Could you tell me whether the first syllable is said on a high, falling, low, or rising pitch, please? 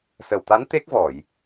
low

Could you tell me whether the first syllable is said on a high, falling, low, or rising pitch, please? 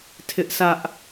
high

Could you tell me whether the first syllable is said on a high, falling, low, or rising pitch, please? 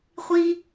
high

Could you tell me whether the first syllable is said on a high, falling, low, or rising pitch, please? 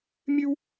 high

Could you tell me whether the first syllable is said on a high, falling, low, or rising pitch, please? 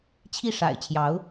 falling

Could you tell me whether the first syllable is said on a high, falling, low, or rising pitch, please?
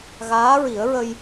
rising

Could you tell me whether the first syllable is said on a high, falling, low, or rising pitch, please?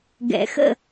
low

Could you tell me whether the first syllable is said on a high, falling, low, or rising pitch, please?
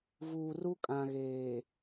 low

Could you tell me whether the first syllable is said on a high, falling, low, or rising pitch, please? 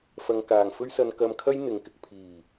low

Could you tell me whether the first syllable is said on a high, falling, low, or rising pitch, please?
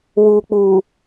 low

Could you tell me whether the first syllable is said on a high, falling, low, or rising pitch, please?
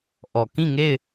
low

